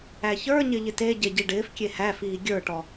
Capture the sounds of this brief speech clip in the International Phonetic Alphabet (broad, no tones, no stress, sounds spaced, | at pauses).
æ ç ə˞ ɲ ɪ ʎ ɪ t e ɟ e ɟ i ɖ ɪː f kʲ e h æ f iː ɡʲ ə˞ ʈ ɔ